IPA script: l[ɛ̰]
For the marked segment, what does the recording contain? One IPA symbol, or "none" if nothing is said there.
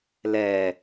ɛ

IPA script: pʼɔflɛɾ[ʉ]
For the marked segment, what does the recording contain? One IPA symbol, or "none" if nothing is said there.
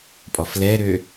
ø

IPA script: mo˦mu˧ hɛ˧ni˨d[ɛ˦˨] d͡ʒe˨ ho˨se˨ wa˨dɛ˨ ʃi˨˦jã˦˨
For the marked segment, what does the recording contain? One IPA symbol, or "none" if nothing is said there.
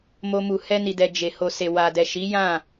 ɛ˨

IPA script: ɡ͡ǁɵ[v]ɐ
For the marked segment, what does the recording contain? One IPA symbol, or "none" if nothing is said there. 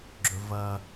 v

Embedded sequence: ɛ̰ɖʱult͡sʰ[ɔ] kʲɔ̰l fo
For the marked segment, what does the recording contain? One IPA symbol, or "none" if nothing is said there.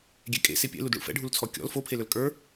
ɔ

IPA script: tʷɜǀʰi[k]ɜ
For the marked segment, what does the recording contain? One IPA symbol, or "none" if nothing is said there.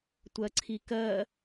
k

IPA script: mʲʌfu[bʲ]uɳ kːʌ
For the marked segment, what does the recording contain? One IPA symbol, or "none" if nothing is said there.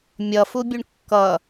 bʲ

